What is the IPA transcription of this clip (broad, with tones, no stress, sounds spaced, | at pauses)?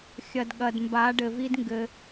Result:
xʲ ɐ˨ d ɠ ɐ˨ d m b a˨˦ ɖ ɘ˨ v i˦ d ŋ ɡ ɘ˧